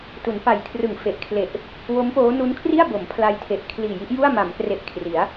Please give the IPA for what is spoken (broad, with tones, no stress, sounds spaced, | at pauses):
t u˩˦ n p a˨˩ j kʰ r ɯ˨˩ ŋ f e˨˩ ʔ kʰ l e˨˩ ʔ | w o˦˥ m p oː˦˥ n u˦˥ n kʰ r i˥˩ a̯ b o˩˦ m pʰ l a˧ j tʰ e˨˩ ʔ kʰ l iː˨˩ j i˦˥ ʔ j u˥˩ a̯ m a˩˦ m k r e˨˩ ʔ kʰ r i˩˦ a̯